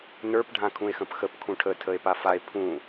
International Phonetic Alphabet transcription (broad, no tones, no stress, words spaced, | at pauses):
nə˞p ɖʱãkʰũe̯xə̃pxəp kʰũʈʰə tʰəe̯pafae̯ pʰũ